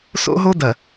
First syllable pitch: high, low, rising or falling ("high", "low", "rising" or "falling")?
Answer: high